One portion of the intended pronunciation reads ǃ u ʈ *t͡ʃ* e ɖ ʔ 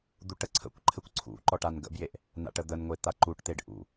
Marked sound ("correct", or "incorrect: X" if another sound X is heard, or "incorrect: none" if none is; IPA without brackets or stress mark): incorrect: t̪